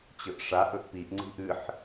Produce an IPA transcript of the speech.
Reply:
t͡ɕ ɵ ʔ ʂ a ʔ ɵ ʔ p i ʔ ŋ͡ǀ i̤ ʔ ɨ ħ

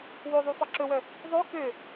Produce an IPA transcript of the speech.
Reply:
w o ðˤ u f ɑ ǁ ɵ w œ | ðˤ ø k ø

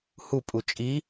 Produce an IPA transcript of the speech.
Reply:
h u pʼ u t͡ʃʼ i

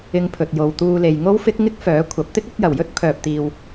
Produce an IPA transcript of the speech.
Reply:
ɪ˧ ŋ pʰ ɵ˨ t̚ j o˧ w t̪ uː˥ l e˧ j ŋ o˥ w f ɪ˥ k̚ ŋ ɪ˥ k̚ f œː˨˥ kʷʰ ɐ˨˥ p̚ t̪ ɪ˥ k̚ ɵ˨˥ t̚ j ɐ˨˩ w j ɵ˥ t̚ pʰ œː˨ p̚ t̪ iː˨ w

